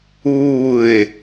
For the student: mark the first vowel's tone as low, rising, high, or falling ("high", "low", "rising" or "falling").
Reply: falling